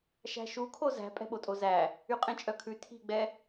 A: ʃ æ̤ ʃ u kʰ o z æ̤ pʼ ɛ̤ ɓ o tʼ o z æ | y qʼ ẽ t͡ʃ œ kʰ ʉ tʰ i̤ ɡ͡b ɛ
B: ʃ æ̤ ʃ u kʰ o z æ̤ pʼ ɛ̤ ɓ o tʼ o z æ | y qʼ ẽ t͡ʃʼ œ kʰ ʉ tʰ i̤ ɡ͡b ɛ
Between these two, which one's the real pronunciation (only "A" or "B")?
B